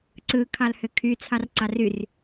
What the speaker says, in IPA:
ǀɯ kʰɑlhøkʰyt͡sʰɑr ǀɑryr

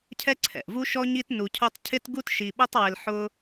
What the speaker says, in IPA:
cʰɛ˥ǀʰɛ̰˩ʔvu˥ʃɔ˥ ɲi˥tnu˧cʰo˥tˤ cʰɪ˥tɡu˥tʃi˧ ɓo˥tˤwɪ˧l ħʊ˥

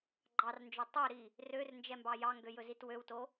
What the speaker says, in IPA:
ɡ͡ǃɑrnd͡ʒɵ tˤøɾi | rørnd͡ʒɛmbɑ jɑŋɡøjɵzit wøwto

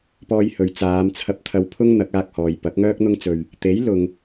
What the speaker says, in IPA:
pɔː˧jhɵ˨˧ɥ t͡saː˨˧mt͡sʰɐ˧p̚ t̪ʰɐ˧wpʰʊ˥ŋ n̪ɐ˨˥k̚aː˧k̚ hɔː˨jpɐ˨˥k̚ ŋœː˥k̚n̪ʊ˥ŋ t͡sɵ˧ɥ | t̪e˨˥jlʊ˨ŋ

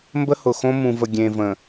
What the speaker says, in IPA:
mbə˦hʊ˨xõ˦ mũ˨və˨ ɡʲẽ˨və̃˨

